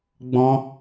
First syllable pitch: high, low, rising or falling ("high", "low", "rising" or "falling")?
high